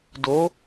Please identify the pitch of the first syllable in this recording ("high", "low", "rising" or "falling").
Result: rising